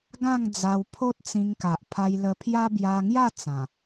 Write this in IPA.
ɡ ã˥˧ ŋ d͡z a˧ w pʰ o˦ t̚ t͡s ĩ˧ ŋ k a˨ ʔ pʰ a˧ j l ə˧ pʰ j a˦ b j a˧ ŋ j a˥˧ t͡s ã˨˩

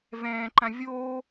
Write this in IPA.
v ɛ̃ː ǃ ã vʲ oː

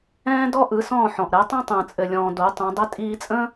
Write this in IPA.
ɛ̃ː˥ d ɔ˥ ʔ ɯ˩˥ s ɔ̃ː˥˩ ħ ɔ̃˩ ʔ ɾ ɛ˩˥ tˤ ɛ̃˥ tˤ ə̃ː˩ t͡sʼ ɘ˩ lʲ ɔ̃ː˩ d o˩˥ tˤ õ˩˥ dˤ ɘ˥ tʼ iː˧ t͡sʼ ə̃ː˥

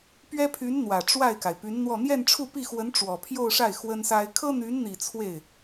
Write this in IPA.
p ɥ ɛ˥ pʰ y˧˥ n n̪ w ä˨˩ ʈ͡ʂ w a˥˩ ɪ̯ k a˩ ɪ̯ p y˧˥ n n̪ w ɔ˥˧ n̪ j ɛ˥˧ n ʈ͡ʂʰ u˥˧ p i˥˩ x w ə˧˥ n ʈ͡ʂ w ɔ˨˩ pʰ j o˥˧ ʊ̯ ʂ a˥˩ ɪ̯ x w ə˥ n s a˥ ɪ̯ kʰ ɤ˥ n̪ y˧˥ n n̪ i˨˩ t͡sʰ w e˥˩ ɪ̯

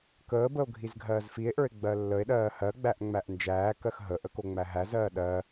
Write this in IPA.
k əː b ə o̯ ɡʱ i z ɡʱ ɜː z f i e̯ ʔ ə˞ e̯ ɡ͡b ɜ lː ə e̯ ɗ ɜː h ɜ ɡ͡b æ ʔ ŋ͡m æ ʔ n d͡ʒ æː k ɜ x ɦ ə ʔ ə k o ŋ͡m æ ɦ æ z ɜː ɗ ɜ

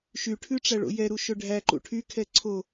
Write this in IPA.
ʃ y ʈʰ ʉ ʈ͡ʂ æ ɭ o̰ j ɛ ɾ u ʃ ɵ ɖʱ æ ǃ ṵ ʈʰ y kʰ ɛ ǀʰ o

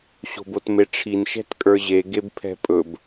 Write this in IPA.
ɕ o̤ b o t m e ʈ͡ʂʰ i n ʃ ɛ̤ t kʼ ə˞ ʑ e ɡ e b pʰ ɛ̤ pʼ ɵ b

